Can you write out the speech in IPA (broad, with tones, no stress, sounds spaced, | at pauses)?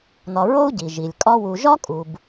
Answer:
n ɒ˨ ɹ o˥ u̯ ɟ i˩ ʒ i˩ lʲ kʼ ɒ˦ w u˨ ʒ ɒ˥ kʼ u˩ b